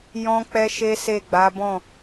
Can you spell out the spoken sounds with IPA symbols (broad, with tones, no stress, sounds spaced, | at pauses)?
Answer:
j ɔ̃˦ k͡p ɛ˦ ʃ e˦ s e˦˨ ɡ͡b a˨˦ b ɔ̃˦˨